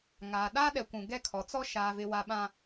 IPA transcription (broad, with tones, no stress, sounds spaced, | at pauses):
ŋ aː˨ ɗ aː˦ ɗ ɛ˨ kʷ ũ˨ ɡ ɛ˦ kʰ ɔ˨ t͡s ɔ˦ ʃ aː˨ v ɪ˨ w a˨ ɓ ã˨